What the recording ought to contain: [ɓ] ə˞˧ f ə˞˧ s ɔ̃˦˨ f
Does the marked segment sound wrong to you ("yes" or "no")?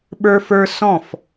no